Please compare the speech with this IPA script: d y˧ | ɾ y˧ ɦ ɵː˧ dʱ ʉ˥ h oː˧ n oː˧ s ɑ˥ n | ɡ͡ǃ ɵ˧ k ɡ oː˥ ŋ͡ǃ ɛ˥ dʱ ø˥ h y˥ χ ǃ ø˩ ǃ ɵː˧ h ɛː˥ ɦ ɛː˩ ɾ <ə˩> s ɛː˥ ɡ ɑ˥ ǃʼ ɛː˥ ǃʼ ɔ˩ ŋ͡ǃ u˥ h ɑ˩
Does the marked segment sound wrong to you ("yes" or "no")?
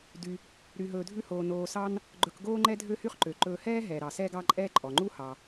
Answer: yes